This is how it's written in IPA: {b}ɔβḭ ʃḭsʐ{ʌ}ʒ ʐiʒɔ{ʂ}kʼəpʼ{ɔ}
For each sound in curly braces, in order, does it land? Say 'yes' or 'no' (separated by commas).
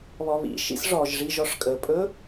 no, no, yes, no